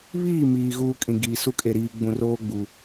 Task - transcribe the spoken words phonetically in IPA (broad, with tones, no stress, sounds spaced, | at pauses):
β iː˦˨ m iː˨ ɣ uː˦ kʼ ĩ˨ ɡ iː˨ s u˦ kʼ e˨ ɾ iː˨ ɡ͡b ũ˨ r oː˦ ɡ͡b u˨